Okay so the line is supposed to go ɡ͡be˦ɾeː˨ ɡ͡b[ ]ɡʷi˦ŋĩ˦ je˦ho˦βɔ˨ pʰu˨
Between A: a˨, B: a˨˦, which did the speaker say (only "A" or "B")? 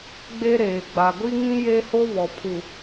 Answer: A